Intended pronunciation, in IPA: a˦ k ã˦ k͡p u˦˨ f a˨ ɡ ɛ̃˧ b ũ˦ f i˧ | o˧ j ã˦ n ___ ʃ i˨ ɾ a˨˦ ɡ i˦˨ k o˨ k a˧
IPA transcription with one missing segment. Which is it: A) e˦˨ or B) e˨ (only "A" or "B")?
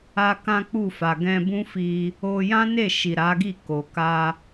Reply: A